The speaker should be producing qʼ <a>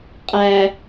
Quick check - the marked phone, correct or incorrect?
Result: incorrect